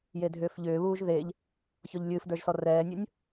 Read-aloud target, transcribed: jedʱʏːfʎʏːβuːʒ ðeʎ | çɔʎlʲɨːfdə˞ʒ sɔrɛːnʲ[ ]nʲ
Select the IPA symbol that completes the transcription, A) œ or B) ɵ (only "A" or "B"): B